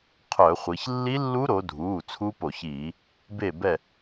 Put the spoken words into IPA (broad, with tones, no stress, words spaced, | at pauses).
qʰœ˧˩˧χʷi˩˧ç lːi˦˥lːu˦˥ɾo˩˧dʱuː˩˧˩ t͡sʰu˦˥po˧˩˧çiː˧˩˧ | be˥˨bɛ˥˨